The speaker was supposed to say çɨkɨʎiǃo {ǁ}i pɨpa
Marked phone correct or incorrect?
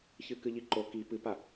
incorrect: k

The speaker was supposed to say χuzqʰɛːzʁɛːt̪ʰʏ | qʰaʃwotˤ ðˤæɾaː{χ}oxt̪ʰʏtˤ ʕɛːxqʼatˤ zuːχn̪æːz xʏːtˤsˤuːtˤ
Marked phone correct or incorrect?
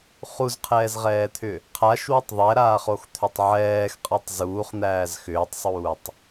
correct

